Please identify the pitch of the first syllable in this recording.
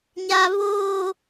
high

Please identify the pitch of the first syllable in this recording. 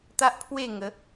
high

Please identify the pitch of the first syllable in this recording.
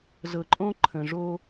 low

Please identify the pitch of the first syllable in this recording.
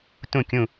falling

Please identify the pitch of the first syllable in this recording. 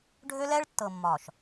high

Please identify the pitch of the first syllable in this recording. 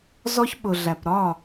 high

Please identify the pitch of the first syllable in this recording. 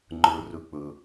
low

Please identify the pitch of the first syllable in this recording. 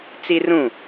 high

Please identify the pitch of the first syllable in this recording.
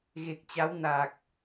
low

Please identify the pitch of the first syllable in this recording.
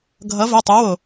rising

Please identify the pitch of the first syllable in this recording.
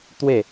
falling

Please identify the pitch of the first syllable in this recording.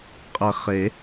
low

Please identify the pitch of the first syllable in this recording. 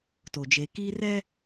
low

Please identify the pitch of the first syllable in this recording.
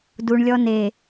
low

